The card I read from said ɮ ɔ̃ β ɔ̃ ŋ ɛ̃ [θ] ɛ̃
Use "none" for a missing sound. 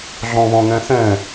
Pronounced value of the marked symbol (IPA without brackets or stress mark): θ